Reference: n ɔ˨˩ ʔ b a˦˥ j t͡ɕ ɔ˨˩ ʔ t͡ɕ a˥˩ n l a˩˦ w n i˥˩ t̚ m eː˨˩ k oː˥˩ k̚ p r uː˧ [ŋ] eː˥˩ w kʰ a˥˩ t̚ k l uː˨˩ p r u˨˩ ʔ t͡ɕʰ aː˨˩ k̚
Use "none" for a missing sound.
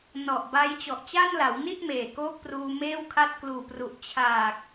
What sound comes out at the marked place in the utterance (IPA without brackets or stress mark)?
m